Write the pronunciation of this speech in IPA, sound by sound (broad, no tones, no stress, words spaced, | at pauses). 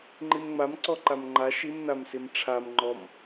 ŋ͡ǃimŋ͡mam ǀɔǃamŋ͡ǃa ʃim namsimʈ͡ʂʰam ŋ͡ǃɔm